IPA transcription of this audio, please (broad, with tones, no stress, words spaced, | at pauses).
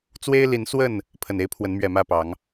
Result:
t͡swe˦ɪ̯li˨˦nswə˥˨n | pʰə˨˩ne˦ɪ̯ pʰwə˨˦nmɥɛ˨˩mä˥˨pɑ˨˦ŋ